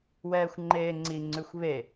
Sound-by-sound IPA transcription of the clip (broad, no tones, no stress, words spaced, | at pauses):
wɛːxʷŋ͡ǃeːŋ͡ǀi ŋ͡ǀʉxʷβe